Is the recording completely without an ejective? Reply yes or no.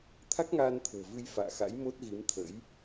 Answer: yes